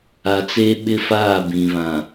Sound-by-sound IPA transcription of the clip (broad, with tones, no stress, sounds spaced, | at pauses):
a˨ t͡s eː˦ ɓ ɪ˦ f aː˦˨ b ĩ˨ β ã˨